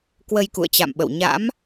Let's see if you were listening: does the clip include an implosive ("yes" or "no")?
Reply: yes